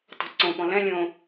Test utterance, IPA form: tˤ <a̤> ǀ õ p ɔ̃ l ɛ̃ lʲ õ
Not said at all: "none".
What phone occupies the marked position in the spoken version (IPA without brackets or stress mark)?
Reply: a̤